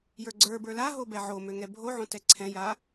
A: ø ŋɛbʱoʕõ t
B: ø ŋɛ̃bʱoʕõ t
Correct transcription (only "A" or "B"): A